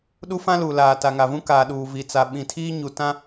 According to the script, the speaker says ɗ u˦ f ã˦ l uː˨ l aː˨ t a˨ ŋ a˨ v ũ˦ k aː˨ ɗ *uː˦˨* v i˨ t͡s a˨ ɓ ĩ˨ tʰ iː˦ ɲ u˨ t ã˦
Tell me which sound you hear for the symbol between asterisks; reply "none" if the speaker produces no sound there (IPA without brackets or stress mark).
uː˨